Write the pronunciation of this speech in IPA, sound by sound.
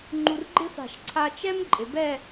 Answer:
ŋ͡ǃ u˧ r ɡ͡ǃ ɪ˥ f a̤˧˩ ʃ ǀʰ a˧ t͡ʃ ɛ˥ m ǃʼ ɪ˩˧ b ɛ˥˧

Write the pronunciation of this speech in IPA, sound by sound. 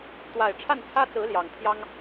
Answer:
t̪ w a˨˩ ɪ̯ ʈ͡ʂʰ a˥˩ n t͡sʰ ä˥ t͡s ɹ̩˧˥ l j ɑ˨˩ ŋ t̪ʰ j ɑ˥ ŋ

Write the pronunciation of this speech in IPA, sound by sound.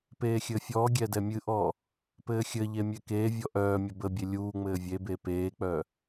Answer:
p eː xʲ ɘ fʲ ɔː ɡʲ ɛ d ɛ mʲ ɨ ʔ ɔː | p ɘː xʲ ɘ ʎ e mʲ ɛ k eː vʲ ɔ ʔ œː mʲ ə b ə bʲ e lʲ uː ŋ͡m ɘː vʲ e b e p eː k͡p œː

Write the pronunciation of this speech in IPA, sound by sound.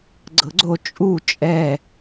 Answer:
ɡ͡ǀ ɤ ɡ͡ǀ o t͡ʃʼ u t͡ʃʼ ɛ

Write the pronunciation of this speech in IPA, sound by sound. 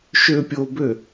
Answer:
ʃ ø pʲ o b ø

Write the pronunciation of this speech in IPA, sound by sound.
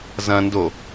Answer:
z ɐ̃ n d o

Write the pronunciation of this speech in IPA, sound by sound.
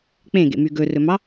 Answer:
k͡p ẽ ɡ ḛ m y ɡ ɵ r ɵ m ɑ

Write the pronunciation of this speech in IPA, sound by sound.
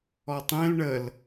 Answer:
ɔ tˤ ẽ l ɳ ə l

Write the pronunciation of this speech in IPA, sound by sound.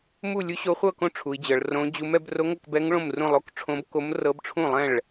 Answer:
m u˥˧ lʲ u˦˥ ɕ o˦˥ χʷ ɤ˥˧ k õ˥˧ ʈ͡ʂʰ u˦˥ i̯ d͡ʑ ɤ˦˥ ɭ r õ˦˥ d͡ʑ u˦˥ m ɛ˦˥ b r o˦˥ ŋ ɤ˥˧ k b ɛ˦˥ ŋ ɭ õ˥˧ m r ũ˥˧ lˠ o˦˥ k ʈ͡ʂʰ õ˦˥ b k o˦˥ m r ɤ˦˥ b ʈ͡ʂʰ ũ˥˧ lˠ ɛ̃˥˧ ɭ

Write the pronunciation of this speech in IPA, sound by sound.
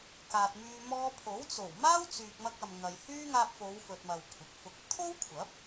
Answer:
k aː˨ t̚ m yː˧ m ɔː˧ pʰ o˨˥ w t͡s o˨˩ w m aː˥ w t͡s yː˨ k̚ m ɐ˧ k̚ ɐ˨ m ŋ ɐ˨ j h yː˥ ŋ aː˧ p̚ f o˨˧ w f ɵ˨ t̚ m ɐ˨ w kʷʰ ɪ˨ k̚ f ʊ˧ k̚ t̪ʰ o˥ w kʷʰ ɐ˨˥ p̚

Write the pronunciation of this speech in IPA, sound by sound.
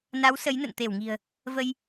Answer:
n a˨˦ w s ə˨˦ j n ə̰˧˨ n t̪ e˧˩ w ŋ i̤˨˩ ə̯ | v ə˧ j

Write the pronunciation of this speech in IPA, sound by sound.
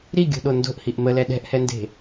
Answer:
ɾ i ɡʲ o̤ ɗ o n d o̤ ʔ h i ʔ m ə l ɛ ɗ ɛ̤ ʔ h ɛ n d e̤

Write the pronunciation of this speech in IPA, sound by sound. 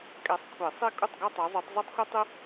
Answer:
kʼ ɛ˨˦ sˤ kʷʰ e˨˩˦ sˤ e˥˧ kʼ u˥˩ tˤ ɡ ɐ˥˧ tˤ ɐ˨˦ zˤ o˨˦ tˤ z o˥ tˤ xʷ ɐ˥ tˤ ɨ˥

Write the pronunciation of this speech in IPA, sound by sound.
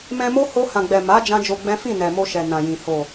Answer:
m ɛ̃˧ m o˦ h o˧ h ã˨ ɡ͡b ɛ˨ m a˨˦ d͡ʒ ã˦ d͡ʒ o˧ ɡ͡b ɛ̃˦ f ĩ˦˨ n ɛ˨ m o˧ ʃ ɛ˨ n ã˨ j ĩ˨ h o˨

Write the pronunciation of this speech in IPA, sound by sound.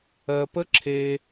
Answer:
ɜ˨ p ə˦ ǁʰ e˧

